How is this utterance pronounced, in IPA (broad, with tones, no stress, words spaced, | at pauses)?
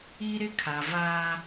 i˦ɾɪ˦ kʰa˨vaː˦